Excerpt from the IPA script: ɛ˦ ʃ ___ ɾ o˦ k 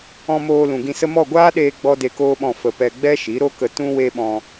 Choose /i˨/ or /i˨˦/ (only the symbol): i˨˦